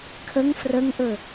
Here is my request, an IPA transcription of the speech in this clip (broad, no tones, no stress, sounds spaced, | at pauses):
kʰ ə ŋ f r ə ŋ ʔ ɵ